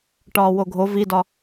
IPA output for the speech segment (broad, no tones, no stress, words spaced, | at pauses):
ʈɒːwoɡʱo vidɒ